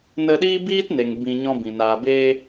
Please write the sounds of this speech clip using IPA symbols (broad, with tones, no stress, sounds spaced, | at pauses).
n ə˧ ɗ iː˦ b iː˦ t n e˨ ŋ b ĩ˧ ɲ ɔ̃˦ b ĩ˨ n aː˨ b eː˧